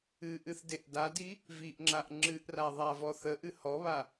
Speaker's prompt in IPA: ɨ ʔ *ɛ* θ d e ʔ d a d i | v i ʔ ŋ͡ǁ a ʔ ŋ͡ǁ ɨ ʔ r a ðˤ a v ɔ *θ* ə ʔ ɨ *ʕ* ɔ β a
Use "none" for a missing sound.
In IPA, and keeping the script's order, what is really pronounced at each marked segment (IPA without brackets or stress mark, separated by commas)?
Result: ɨ, θ, h